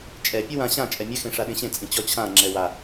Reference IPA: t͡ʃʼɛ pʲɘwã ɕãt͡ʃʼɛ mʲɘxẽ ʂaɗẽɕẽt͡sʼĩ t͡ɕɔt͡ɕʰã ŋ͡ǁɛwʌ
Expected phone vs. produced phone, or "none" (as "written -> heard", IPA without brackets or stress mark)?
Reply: ʌ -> a